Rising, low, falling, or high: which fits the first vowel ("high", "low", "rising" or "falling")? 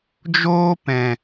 high